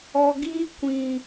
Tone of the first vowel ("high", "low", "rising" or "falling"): low